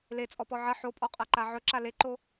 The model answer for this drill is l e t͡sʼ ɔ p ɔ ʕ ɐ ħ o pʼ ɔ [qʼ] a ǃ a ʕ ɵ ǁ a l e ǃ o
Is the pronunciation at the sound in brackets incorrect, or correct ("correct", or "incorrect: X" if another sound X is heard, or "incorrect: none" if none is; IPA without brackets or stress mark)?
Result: correct